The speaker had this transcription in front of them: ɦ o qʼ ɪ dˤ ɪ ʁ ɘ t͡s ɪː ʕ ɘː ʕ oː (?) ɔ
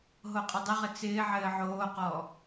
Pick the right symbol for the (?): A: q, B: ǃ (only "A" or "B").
A